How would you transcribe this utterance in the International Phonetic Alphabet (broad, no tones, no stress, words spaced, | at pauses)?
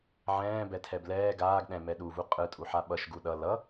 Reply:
ʕɛ̃ː bɛtʰɛblɛː ɡaːɡ ɗɛ̃ mɛɗuvu qʼɯtʼuħa ɓʌʃ ɡuɗʌ lʌ